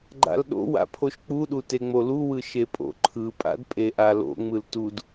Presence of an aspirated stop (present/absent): present